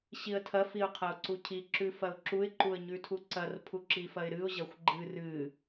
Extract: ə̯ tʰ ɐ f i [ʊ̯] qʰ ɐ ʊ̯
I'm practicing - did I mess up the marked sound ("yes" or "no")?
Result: no